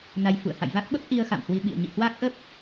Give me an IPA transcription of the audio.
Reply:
na˧j fṵ˧˨ə̯ ha̰˧˨jva˦˥k̚ɓə˦˥p̚ ʔi˧ə̯ xa̰˧˨mhwi˧ɓḭ˧˨ə̯ ɲḭ˧˨ hwa˦˥k̚ʔə˦˥p̚

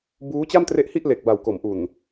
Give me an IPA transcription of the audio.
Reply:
buː˦˥t͡ɕa˥˩mtre˦˥ʔhi˥˩ʔ le˨˩k̚ba˨˩wko˩˦mʔu˨˩n

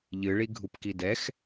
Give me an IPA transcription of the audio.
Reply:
ʎɨɭiɡʱupki dɛx

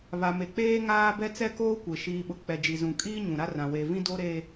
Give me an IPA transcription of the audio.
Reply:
βa˨me˨k͡peː˦ ŋaː˦bɛ˦ t͡sɛ˦koː˦kʷe˨ ʃiː˨ɓʊ˨ k͡pɛ˨ d͡ʒi˨zũ˨kʼiː˦ ɲũ˨ɾa˦rã˨ we˨vĩ˦do˦ ɾe˦

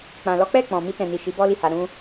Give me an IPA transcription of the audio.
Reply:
k͡pã˨lɔ˨˦k͡pɛ˦˨ k͡pɔ̃˨ mi˧tɛ̃˨ni˨ ʃi˨˦bɔ˦li˦˨ha˧ ɾũ˧

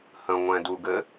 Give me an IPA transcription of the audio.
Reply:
hə̃ŋʷɛ̃duɡɘ

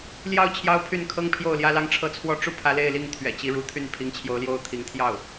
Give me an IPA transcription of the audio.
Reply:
ljɑ˥˩ʊ̯ t͡ɕʰjɑ˥ʊ̯pʰy˥˩nkʰɤ˥ŋpʰjo˥˩ʊ̯ ljä˥lɑ˥ŋʈ͡ʂʰɤ˥˧ t͡sʰwɔ˥˧ ʈ͡ʂu˥˩pʰä˧˥ le˥˧ɪ̯li˥˩ŋ t̪ʰɥɛ̰˨˩t͡ɕi˧˥ɻu˧˥t̪ʰy˥˩n pʰi˧˥ŋt͡ɕʰjo˧˥ʊ̯ljo˥˩ʊ̯t̪ʰi˧˥ŋ t̪ʰjɑ˥˩ʊ̯

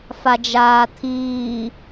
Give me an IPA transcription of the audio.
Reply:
fad͡ʒaːt̪ʰiː

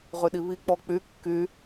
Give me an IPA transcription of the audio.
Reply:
ʁyɗiβi k͡pɔk͡py kːy

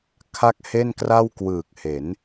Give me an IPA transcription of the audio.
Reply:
kʰa˥˩k̚he˥˩nkra˥˩w kwɯː˨˩k̚he˩˦n

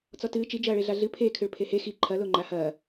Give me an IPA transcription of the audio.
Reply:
t͡sɔtɨː t͡ʃi d͡ʒɐːɭeɮaɮɨ pʰeːkʰɨɭ pʰehe xi ǃʰɐlo ŋ͡ǃahɐː

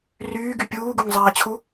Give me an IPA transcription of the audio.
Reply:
ryːɡy pʲuːɡuŋzˤaːt͡ɕʰu

